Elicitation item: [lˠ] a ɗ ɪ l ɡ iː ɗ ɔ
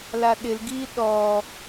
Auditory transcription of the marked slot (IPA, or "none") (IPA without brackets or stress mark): l